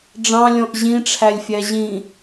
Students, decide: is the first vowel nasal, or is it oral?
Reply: nasal